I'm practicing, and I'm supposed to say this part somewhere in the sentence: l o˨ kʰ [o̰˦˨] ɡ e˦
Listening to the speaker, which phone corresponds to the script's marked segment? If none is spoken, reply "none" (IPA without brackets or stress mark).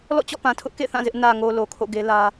o̰˦˨